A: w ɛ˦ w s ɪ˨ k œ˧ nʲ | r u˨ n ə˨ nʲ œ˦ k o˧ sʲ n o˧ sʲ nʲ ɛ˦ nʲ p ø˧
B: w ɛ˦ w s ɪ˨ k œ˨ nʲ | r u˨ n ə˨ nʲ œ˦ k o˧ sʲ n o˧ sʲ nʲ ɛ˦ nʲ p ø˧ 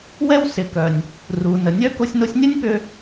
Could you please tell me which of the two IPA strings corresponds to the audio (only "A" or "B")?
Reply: B